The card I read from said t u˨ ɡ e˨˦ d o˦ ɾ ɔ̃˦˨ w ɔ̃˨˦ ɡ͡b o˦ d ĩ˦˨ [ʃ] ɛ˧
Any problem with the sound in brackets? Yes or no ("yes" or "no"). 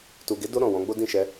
no